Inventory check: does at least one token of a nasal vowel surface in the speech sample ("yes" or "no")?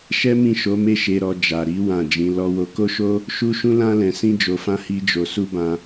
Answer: yes